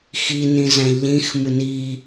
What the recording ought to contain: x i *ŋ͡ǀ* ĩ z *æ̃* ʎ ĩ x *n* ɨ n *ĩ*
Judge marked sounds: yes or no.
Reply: no, yes, no, no

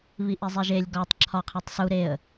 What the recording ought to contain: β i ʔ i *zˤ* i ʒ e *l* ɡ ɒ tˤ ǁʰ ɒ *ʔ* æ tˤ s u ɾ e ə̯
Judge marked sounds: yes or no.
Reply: yes, no, no

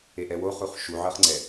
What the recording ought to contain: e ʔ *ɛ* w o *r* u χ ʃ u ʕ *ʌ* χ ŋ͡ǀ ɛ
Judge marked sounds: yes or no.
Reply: yes, no, yes

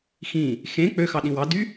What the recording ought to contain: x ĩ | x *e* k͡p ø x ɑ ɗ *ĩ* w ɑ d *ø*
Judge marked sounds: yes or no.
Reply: no, yes, no

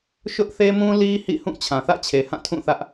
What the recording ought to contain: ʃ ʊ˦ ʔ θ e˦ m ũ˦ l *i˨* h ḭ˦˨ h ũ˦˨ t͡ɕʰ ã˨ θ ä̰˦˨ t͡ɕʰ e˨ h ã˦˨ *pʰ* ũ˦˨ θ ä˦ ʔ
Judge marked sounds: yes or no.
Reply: no, no

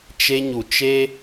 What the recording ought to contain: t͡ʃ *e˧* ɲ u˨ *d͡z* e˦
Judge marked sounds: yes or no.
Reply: yes, no

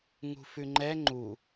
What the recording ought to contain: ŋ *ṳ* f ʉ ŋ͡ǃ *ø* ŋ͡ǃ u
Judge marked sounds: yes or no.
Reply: yes, no

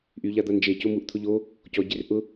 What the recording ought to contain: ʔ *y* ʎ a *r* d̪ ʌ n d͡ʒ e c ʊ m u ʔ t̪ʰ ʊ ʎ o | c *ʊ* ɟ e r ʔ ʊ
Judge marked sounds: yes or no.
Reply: yes, no, no

